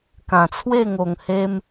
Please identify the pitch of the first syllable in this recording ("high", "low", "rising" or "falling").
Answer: low